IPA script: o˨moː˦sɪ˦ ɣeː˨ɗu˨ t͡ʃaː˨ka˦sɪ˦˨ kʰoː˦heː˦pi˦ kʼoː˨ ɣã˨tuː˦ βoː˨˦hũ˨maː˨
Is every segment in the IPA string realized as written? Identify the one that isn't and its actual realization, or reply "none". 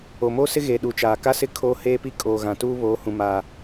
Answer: none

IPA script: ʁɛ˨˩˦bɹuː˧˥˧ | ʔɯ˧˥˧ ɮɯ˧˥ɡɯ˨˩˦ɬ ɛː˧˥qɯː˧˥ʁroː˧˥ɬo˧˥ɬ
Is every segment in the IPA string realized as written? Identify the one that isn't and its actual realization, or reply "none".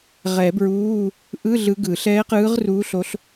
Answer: oː˧˥ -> uː˧˥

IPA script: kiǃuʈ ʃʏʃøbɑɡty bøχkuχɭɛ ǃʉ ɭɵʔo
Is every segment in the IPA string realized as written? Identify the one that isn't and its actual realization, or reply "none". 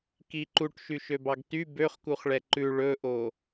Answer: ʏ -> y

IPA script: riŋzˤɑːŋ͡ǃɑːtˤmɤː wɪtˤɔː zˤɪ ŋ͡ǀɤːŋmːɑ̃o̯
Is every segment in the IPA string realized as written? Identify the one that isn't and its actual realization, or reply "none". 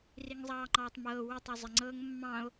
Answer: ɔː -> ɔ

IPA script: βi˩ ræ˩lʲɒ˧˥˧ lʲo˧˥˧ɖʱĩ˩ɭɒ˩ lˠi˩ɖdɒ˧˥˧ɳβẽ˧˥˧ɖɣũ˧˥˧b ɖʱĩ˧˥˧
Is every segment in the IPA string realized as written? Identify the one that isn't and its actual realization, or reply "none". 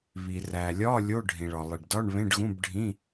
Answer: none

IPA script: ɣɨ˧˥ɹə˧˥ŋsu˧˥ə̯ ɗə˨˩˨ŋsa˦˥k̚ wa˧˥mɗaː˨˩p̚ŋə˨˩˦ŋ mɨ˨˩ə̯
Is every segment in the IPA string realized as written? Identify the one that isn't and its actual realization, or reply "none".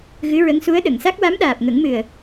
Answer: none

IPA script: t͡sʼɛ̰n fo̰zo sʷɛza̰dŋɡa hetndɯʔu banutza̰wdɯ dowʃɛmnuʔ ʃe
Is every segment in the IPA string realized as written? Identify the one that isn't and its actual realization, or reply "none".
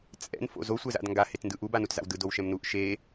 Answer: none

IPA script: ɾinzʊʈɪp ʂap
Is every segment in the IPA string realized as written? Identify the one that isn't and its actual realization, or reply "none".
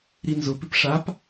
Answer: ʈ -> p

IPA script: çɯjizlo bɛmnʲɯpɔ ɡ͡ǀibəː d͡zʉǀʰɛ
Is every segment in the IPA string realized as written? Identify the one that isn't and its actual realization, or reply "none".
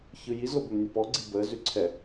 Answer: d͡z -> z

